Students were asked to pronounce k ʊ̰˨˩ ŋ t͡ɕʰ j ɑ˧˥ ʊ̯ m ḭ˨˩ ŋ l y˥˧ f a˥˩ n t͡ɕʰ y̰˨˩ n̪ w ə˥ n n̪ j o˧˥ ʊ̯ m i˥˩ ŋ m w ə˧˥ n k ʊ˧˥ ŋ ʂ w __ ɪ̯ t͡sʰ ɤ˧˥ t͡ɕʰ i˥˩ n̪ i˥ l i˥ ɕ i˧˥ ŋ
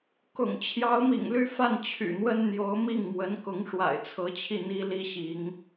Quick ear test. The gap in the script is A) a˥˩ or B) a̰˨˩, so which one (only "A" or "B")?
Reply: B